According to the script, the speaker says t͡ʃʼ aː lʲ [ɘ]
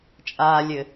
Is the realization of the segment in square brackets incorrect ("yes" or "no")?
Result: no